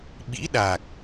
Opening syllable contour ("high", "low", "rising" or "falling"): rising